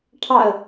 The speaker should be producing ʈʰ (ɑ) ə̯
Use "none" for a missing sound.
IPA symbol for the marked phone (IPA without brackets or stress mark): ɑ